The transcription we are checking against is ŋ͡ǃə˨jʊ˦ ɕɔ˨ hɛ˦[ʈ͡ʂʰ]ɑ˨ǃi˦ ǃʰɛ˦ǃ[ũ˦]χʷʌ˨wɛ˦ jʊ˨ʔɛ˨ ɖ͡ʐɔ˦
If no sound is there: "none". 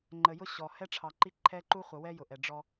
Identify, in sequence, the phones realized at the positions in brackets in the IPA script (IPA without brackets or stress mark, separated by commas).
ʈ͡ʂʰ, u˦